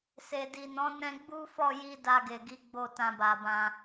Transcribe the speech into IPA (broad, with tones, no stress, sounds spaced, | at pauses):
s e˨ d i˨ n ɔ̃˨˦ n ɛ̃˧ ɡ͡b u˦ f ɔ˦˨ j i˧ d a˧ ɡ e˨ ɡ i˨˦ ɡ͡b o˦˨ t ã˧ b a˨ b ã˧